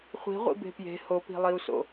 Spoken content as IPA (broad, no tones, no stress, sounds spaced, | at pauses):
χʷ i̤ ʁʷ ḭ b e̤ p j e̤ h o p i̤ lˠ i u̯ s o̰